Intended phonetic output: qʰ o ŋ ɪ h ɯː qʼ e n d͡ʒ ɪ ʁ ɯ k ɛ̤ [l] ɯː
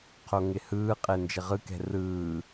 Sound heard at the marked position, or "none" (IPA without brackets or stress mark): r